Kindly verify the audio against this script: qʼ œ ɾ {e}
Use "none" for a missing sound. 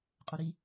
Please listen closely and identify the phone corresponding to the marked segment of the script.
i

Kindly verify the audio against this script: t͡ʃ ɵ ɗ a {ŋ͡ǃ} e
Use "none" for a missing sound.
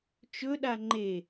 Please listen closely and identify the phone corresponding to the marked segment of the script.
ŋ͡ǃ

